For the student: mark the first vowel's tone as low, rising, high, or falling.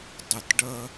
falling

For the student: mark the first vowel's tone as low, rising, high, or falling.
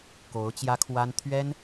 rising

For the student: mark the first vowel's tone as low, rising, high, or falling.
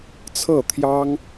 falling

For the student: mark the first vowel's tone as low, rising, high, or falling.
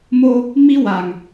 high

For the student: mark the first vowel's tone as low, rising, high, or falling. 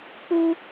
high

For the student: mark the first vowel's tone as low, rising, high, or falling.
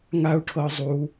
high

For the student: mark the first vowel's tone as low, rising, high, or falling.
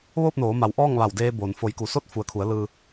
falling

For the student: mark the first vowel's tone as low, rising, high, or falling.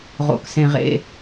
low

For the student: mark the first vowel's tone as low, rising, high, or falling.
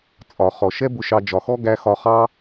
low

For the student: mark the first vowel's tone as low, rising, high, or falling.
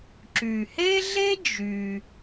low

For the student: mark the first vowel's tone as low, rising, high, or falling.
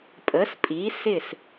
rising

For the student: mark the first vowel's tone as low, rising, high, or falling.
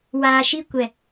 low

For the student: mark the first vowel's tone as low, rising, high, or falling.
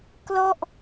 falling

